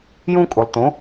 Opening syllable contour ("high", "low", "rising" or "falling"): high